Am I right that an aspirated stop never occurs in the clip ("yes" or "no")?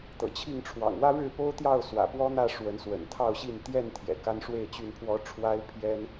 no